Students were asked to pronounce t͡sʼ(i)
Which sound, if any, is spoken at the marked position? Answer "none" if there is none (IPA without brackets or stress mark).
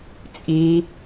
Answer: i